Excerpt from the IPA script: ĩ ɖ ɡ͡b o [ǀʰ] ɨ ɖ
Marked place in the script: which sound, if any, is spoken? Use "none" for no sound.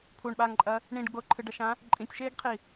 ǃʰ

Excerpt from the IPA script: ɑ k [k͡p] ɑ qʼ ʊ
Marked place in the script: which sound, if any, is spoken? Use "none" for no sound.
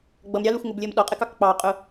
k͡p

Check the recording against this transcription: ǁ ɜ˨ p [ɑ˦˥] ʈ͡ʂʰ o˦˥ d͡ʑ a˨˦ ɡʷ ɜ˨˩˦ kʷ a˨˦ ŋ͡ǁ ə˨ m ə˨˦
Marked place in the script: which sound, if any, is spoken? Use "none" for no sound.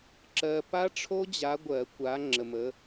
a˦˥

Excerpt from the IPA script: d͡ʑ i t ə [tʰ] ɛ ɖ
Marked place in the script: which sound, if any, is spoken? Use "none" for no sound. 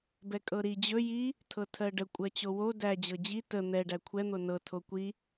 n̪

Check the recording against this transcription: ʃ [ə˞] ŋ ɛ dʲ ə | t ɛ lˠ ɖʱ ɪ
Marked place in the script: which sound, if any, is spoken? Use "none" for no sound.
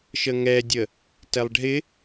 ə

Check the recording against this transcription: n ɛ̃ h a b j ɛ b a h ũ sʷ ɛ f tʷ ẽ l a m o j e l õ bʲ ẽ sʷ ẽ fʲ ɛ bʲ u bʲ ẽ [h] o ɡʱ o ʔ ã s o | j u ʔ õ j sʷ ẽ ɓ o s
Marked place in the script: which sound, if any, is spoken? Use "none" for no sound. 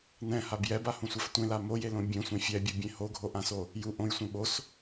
h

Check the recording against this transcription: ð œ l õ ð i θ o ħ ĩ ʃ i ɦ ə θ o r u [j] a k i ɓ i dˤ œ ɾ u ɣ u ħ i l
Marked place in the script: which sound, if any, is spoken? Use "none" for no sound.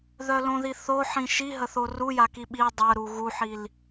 j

